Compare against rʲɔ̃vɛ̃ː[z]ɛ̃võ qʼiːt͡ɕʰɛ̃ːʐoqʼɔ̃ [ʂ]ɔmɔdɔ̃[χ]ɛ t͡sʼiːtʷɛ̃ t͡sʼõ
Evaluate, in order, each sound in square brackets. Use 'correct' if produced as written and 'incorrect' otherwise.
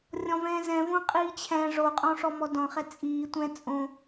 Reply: correct, correct, correct

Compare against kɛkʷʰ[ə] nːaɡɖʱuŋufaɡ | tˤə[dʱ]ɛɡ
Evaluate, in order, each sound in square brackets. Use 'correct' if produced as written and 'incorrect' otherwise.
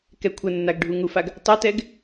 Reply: correct, incorrect

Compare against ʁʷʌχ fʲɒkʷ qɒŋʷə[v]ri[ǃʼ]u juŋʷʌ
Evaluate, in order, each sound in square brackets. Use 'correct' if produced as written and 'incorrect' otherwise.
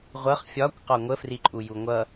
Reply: incorrect, correct

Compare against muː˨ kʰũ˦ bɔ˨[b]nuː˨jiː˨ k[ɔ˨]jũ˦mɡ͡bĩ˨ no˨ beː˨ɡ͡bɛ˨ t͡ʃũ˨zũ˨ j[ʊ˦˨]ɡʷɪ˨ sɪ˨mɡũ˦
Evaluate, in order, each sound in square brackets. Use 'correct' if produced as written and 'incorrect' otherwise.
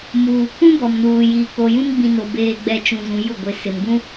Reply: incorrect, incorrect, correct

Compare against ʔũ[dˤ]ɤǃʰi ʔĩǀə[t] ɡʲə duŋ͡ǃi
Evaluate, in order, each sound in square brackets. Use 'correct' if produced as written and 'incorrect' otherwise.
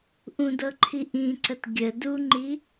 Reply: incorrect, correct

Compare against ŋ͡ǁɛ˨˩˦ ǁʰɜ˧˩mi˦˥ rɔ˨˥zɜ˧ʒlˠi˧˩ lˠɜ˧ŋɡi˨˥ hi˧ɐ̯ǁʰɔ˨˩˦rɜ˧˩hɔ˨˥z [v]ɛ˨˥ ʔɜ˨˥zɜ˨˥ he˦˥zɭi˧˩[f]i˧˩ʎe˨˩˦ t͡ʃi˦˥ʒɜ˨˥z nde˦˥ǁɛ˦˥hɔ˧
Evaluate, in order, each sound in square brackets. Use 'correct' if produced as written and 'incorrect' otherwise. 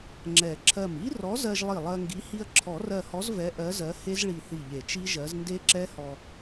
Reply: correct, incorrect

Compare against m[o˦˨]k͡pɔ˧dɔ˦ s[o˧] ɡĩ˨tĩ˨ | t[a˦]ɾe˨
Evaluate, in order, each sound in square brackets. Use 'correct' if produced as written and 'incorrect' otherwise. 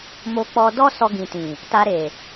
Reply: incorrect, incorrect, incorrect

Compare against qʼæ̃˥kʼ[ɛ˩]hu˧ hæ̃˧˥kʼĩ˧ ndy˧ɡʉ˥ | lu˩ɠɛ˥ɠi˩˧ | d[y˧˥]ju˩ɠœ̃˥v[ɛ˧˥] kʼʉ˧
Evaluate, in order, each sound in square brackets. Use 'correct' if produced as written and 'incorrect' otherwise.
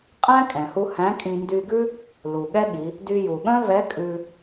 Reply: incorrect, incorrect, correct

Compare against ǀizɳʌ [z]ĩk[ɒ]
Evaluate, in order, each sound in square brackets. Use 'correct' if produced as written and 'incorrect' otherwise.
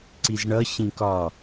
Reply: incorrect, correct

